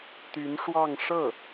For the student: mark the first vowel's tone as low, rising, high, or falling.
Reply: rising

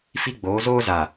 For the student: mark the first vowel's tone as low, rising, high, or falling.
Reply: high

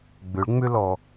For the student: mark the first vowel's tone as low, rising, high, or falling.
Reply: rising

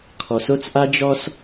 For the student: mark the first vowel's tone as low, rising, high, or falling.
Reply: low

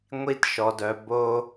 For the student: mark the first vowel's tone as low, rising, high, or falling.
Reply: high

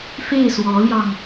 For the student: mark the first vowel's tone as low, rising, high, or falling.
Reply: falling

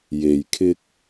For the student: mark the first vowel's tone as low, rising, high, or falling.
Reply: low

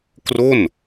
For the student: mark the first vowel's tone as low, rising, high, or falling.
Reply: falling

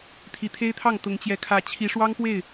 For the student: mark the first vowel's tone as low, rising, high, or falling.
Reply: rising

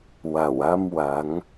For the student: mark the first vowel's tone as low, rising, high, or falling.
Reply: low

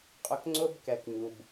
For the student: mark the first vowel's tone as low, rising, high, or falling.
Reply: low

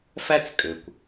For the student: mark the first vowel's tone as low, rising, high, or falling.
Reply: high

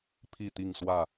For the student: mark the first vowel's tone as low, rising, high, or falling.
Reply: falling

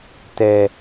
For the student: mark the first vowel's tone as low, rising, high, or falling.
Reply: low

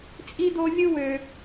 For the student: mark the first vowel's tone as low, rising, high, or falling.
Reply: high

